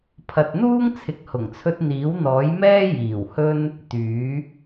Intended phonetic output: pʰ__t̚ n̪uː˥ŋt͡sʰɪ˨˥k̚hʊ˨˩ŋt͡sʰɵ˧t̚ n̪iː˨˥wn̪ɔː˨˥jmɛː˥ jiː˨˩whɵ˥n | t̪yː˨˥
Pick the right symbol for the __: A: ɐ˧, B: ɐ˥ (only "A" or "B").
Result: A